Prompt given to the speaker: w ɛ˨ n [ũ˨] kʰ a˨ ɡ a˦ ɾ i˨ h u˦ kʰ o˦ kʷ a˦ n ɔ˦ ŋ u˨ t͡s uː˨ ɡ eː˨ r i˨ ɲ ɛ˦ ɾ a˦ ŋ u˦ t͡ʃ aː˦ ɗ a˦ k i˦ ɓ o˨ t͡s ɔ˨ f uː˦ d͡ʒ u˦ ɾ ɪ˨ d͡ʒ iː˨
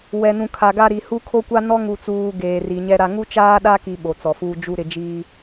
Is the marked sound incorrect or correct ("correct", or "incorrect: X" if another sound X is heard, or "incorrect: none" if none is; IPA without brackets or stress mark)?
correct